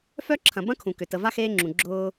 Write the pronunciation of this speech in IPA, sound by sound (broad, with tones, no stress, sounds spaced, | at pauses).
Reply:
f œ˥ ǁʰ ɐ̃˨ b ɐ̃˥ kʰ ũ˩ k ʏ˩ t ə˨ v a˥ x eː˦ ŋ͡ǁ ũ˩ ɡ͡ǁ ʊː˨